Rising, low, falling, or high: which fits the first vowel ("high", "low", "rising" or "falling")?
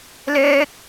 high